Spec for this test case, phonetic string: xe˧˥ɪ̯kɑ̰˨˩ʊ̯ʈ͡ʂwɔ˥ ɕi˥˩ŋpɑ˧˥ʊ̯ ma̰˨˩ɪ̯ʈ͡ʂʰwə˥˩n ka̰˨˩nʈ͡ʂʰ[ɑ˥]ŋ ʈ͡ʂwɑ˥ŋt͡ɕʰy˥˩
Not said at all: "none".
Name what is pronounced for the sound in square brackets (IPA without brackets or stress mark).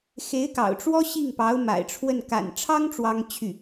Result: ɑ˥